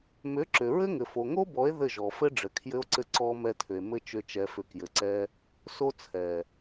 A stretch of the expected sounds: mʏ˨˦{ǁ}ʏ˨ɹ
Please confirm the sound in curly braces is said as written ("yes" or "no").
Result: yes